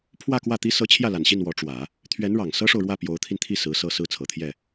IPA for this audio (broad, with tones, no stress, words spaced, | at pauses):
pʰwä˥˧kwä˥˩t̪i˥ sɤ˧˥ t͡ɕʰjä˥˩la˨˩nɕi˥˩n wɔ˧˥ʈ͡ʂwä˨˩˦ | t̪ʰɥɛ˧˥n ɻɑ˨˩ŋ sɤ˥ʂo˨ʊ̯ɻwä˥˩ pjo˧˥ʊ̯t̪ʰi˧nt̪ʰi˥˩ sɹ̩˧˥sɤ˥˧ sɹ̩˥˩t͡sʰɤ˨˩t̪ʰjɛ˥˩